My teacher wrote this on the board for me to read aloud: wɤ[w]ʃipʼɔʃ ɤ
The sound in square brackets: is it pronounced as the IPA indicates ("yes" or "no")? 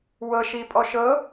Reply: no